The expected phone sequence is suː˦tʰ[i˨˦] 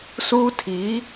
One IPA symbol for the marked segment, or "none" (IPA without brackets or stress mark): i˨˦